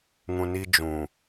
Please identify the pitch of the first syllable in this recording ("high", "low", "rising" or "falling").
low